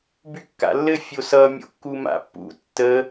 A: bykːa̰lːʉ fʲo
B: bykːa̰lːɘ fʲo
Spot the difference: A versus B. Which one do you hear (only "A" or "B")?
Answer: B